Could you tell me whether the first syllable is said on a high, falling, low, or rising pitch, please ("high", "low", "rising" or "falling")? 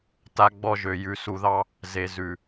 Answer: high